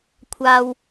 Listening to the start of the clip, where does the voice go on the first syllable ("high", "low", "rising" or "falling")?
high